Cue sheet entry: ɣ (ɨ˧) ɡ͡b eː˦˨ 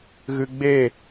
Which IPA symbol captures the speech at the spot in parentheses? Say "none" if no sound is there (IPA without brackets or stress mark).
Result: ɨ˧